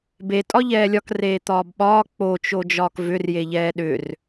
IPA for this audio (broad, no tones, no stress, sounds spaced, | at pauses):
b e tʼ ɒ ʎ ɛː lʲ ɒ k r eː t̪ ɒː b ɓ ɒː k͡p o t͡ʃ o d͡ʒ ɒː k v ʏ r j e ʎ ɛː ɗ ʏ r